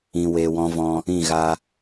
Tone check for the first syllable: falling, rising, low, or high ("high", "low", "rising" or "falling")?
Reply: low